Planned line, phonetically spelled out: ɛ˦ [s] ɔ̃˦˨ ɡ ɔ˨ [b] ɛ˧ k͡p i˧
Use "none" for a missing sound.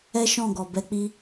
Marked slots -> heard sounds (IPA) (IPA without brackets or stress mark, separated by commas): ʃ, b